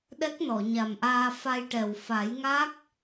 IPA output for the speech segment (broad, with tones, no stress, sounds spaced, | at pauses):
ɗ ɛ˦˥ k̚ n ɔ˨˩˨ ɲ a˨˩ m ʔ aː˧ f a˧ j ʈ ɛ˨˩ w f a˨˩˦ j ŋ a˦˥ k̚